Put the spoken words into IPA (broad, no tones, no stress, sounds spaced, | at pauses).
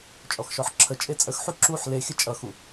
t͡ʃʼ ɔ x ʃ ɔ ħ ǁʰ ə t͡ʃʼ e t͡sʼ ə x ħ u ǁ u ħ l e xʲ ə t͡ʃʼ ʌ x u